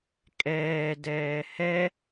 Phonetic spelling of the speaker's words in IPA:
kʼ ɛː d ɛː h ɛ

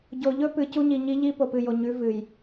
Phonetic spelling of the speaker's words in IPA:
ɟ o˨ ʎ ɵ˦ p ɨ˨ c u˦ ɲ i˨ ɲ i˦ ʎ i˦ p o˨ p ɨ˨ j o˨ ɲ ʉ˨˦ v ɨ˨ j

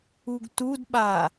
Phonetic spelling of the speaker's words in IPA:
u ɡ t u d ɓ a

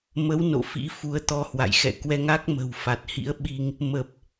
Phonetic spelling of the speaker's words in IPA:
m ə˨˦ w n o̰˧˨ f ḭ˧˥ f u˨˦ ə̯ t̪ ɔ˧ h w a̰˧˨ j x ɛ̰˧˨ k w ɛ˧ ŋ a˦˥ k̚ m ə̤˨˩ w f a˨˩ t̚ h ḭ˧˥ ə̯ ɓ i˧ ŋ | m ə˨˩ p̚

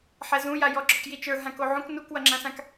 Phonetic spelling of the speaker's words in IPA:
ħ ɛ z ũ j a j ɔ ɡ͡ǁ ɔ k j i t͡ʃ ə˞ ɦ ã k o ʕ ũ k n u k w ʌ ŋ͡ǁ ã s ã k

